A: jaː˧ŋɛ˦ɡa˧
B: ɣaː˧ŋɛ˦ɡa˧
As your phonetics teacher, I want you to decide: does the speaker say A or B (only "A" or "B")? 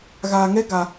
B